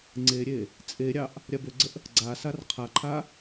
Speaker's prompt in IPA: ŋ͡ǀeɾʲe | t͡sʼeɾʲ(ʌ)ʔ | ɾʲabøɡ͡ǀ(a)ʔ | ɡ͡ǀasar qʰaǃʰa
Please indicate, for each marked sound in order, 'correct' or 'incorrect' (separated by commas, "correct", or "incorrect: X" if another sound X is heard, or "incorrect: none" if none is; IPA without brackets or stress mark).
incorrect: ɑ, incorrect: ə